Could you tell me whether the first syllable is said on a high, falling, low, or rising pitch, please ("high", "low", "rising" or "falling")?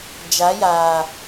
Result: rising